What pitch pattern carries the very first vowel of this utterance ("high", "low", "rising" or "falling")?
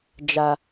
low